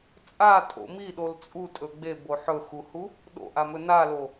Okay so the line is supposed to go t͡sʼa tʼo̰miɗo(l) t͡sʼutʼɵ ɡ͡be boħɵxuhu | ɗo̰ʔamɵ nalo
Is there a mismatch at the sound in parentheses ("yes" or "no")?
no